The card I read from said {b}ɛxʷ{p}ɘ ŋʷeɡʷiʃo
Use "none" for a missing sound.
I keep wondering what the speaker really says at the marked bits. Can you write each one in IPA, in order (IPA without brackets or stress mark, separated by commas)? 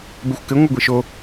b, k